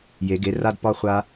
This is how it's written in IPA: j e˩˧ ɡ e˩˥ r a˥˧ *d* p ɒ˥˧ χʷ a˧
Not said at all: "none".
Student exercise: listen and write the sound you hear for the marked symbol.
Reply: d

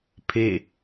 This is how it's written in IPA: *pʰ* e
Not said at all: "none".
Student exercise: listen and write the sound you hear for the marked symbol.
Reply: pʰ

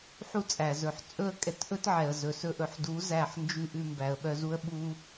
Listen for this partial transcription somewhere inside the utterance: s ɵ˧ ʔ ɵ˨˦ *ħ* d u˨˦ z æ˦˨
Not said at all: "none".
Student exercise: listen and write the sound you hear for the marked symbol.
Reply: ħ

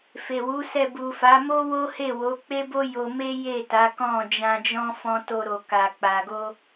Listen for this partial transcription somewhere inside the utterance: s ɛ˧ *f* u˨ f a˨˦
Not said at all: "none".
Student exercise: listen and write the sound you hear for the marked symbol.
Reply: b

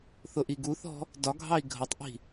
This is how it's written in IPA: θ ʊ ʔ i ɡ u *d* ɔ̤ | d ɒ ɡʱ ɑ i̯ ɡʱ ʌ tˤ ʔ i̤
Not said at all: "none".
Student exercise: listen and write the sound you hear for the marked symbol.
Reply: θ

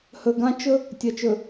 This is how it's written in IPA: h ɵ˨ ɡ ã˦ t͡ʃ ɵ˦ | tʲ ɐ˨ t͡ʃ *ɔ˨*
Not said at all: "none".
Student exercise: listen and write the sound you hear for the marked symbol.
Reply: ɵ˨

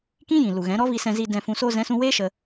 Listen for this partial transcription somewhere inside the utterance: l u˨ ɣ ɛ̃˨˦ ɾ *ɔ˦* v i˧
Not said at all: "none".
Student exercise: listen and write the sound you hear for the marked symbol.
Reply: ɔ˦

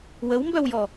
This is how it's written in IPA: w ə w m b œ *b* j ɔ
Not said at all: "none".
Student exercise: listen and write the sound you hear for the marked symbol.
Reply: w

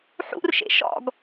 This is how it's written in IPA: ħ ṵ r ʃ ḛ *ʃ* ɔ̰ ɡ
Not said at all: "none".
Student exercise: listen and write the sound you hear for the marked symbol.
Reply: ʃ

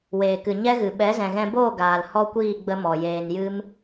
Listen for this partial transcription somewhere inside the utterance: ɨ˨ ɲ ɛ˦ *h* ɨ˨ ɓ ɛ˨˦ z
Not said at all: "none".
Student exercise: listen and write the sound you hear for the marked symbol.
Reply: ɣ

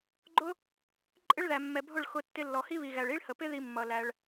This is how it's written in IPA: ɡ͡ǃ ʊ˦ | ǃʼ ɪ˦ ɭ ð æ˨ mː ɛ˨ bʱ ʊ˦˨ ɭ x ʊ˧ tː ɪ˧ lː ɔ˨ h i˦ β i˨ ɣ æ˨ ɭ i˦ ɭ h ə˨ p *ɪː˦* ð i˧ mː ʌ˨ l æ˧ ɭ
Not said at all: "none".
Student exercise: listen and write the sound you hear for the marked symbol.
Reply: ɪ˦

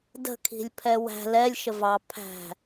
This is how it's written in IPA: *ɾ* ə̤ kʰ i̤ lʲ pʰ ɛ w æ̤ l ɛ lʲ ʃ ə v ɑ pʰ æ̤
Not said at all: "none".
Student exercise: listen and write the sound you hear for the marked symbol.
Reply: d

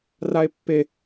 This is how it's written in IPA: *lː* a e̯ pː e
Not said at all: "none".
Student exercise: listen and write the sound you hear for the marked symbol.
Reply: r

